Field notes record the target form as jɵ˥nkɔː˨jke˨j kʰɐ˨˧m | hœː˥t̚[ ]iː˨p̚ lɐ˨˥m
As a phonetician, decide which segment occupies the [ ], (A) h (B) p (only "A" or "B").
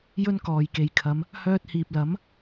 A